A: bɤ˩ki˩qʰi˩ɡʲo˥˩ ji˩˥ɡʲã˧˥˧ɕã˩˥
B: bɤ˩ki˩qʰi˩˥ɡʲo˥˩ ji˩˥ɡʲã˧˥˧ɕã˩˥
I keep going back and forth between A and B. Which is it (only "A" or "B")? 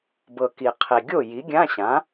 A